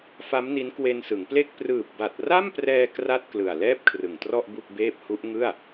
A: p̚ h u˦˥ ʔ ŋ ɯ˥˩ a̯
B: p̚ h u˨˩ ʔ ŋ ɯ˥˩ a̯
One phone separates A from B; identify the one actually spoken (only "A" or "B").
A